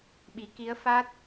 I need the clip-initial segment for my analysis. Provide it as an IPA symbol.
ɓ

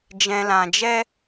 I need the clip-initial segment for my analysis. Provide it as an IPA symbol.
d͡ʒ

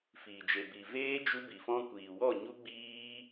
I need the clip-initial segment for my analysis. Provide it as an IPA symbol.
f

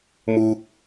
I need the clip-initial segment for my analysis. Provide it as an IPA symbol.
m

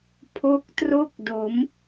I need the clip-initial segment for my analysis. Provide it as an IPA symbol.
pʰ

